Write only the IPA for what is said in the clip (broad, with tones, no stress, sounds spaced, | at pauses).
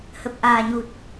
h ə˨˩ p̚ ʔ aː˨˩ ɲ u˨˩ t̚